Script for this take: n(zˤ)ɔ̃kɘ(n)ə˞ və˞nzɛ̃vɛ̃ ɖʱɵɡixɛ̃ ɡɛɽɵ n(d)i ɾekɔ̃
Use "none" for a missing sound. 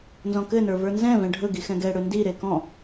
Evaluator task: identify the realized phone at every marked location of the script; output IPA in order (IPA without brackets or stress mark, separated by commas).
z, n, d